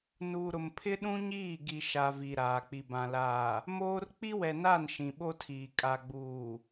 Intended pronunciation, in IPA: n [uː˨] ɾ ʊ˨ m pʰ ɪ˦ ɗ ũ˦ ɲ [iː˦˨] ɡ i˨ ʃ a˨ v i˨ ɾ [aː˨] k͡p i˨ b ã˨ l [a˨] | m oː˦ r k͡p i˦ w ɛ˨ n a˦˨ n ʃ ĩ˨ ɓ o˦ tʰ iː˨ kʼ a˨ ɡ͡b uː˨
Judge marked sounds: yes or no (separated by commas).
yes, yes, yes, no